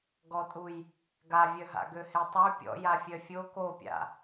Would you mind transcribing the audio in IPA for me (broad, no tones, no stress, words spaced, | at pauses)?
ɡɔtʼuj | ɡavʲœ ɦa̰ɡøhetˤy pʲɔ̰ jafʲœfʲo kopʲa̰